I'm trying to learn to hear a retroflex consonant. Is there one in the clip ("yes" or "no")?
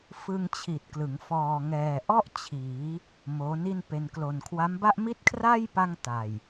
no